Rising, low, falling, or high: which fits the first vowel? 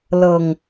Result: low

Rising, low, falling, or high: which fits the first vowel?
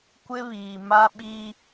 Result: high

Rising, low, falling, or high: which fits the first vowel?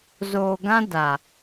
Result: low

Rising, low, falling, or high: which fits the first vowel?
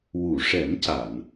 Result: low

